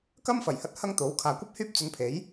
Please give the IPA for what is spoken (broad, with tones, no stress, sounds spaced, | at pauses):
k ɐ˥ m f ɐ˨˩ j h ɐ˧ t̚ h ɐ˥ ŋ t̪ o˨˥ w kʰ aː˨ kʷ ɐ˥ p̚ h yː˥ p̚ t͡s ɵ˧ n pʰ e˨˥ j